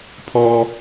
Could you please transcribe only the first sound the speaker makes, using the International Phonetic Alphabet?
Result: pʰ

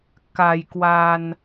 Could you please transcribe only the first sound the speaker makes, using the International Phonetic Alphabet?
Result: k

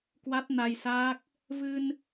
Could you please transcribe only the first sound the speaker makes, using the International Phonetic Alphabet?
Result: k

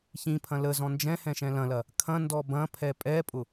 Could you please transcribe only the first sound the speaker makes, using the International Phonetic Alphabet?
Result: ç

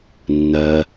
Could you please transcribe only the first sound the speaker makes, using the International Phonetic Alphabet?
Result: nː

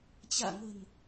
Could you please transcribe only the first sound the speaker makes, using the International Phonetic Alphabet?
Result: t͡ɕ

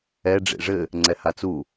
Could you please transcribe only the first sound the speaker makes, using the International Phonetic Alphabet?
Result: ɛ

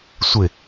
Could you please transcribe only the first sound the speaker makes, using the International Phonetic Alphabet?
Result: sʷ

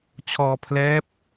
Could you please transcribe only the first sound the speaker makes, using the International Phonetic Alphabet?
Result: t͡ɕʰ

